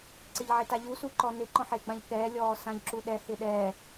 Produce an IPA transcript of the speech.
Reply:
ǀ ɪ ʎ ʕ ɪ t a ʎ u s u ǃ ɔ n ɪ ǃ ɔ̃ ħ e ɡ͡b ã ʎ k ɛː lʲ ɔː s ã ʎ ǁ u ɗ ɛ h ɪ ɗ ɛː

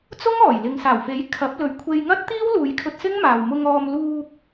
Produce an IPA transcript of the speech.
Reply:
t͡s ʊ˥ ŋ ɔː˨˩ j l ɪ˨ ŋ s aː˨˩ w f e˨˥ j kʰ ɐ˨˥ p̚ l ɵ˨˧ ɥ kʷʰ e˧ j ŋ ɐ˥ t̚ t̪ iː˥ w l uː˨˧ j kʰ ɵ˧ t̚ s ɪ˥ ŋ m aː˨ w m ʊ˧ ŋ ɔː˧ m l uː˧ k̚

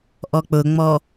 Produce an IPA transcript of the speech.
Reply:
ʔ ɔ k͡p ʊ ŋ͡m ɔ

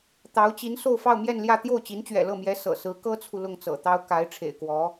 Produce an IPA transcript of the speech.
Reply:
t̪ ɑ˧˥ ʊ̯ t͡ɕ i˧˥ n s o˥˧ ʊ̯ f ɑ˥˧ ʊ̯ m j ɛ˥˧ n l j ä˥˧ t̪ j o˥˩ ʊ̯ t͡ɕ i˧˥ n t͡ɕ ɥ ɛ̰˨˩ l ɤ˥˩ m j ɛ˧˥ s ɤ̰˨˩ s ɹ̩˧˥ k ɤ˥ t͡sʰ u˨ l ʊ˥˩ ŋ t͡s ɤ̰˨˩ t̪ ɑ˥ ʊ̯ k a˧˥ ɪ̯ ʈ͡ʂʰ ḛ˨˩ ɪ̯ k w ɔ˧˥

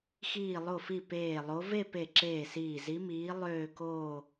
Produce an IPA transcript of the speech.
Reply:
x iː˧˩ lˠ o˧˩ f i˧˩ p eː˧˩ lˠ o˧˥ v e˥˧ p e˧˩ ǁ eː˧˩ s iː˧˩ z i˧˥ m iː˧˥ lˠ øː˥˧ k oː˥˧

